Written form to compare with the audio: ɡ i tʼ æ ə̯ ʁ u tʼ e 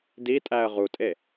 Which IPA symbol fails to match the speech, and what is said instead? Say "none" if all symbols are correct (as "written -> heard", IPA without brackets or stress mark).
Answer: ɡ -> d